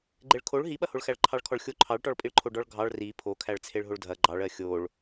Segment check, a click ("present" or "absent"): present